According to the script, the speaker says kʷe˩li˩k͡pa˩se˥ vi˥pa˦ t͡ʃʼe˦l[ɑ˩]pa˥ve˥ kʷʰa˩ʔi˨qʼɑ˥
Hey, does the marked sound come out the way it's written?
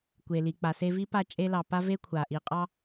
no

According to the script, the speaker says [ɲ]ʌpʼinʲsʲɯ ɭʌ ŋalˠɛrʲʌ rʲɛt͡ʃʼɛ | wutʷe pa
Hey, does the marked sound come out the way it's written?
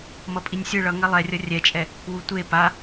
no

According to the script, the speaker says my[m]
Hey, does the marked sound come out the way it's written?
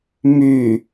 no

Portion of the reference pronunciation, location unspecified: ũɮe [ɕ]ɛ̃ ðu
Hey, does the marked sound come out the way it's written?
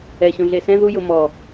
no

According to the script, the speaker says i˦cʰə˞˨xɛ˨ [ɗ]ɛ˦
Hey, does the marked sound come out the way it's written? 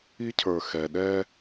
yes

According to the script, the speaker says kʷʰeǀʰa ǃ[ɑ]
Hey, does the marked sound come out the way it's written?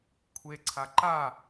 no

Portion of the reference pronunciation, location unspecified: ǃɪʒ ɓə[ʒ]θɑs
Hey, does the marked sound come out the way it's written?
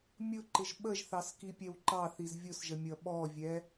yes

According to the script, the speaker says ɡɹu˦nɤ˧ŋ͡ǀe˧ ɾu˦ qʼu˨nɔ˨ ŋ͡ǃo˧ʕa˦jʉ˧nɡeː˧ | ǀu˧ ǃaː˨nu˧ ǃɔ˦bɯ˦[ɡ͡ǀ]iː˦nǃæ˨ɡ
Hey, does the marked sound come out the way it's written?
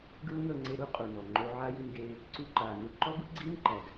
yes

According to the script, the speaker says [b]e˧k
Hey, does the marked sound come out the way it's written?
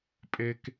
no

